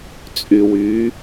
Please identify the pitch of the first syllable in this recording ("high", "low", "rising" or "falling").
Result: low